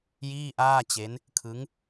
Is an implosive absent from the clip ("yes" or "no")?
yes